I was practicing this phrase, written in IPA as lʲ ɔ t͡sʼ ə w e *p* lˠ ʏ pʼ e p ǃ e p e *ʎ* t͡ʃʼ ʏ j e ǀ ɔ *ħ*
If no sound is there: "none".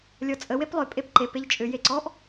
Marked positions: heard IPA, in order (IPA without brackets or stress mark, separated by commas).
p, ʎ, ʔ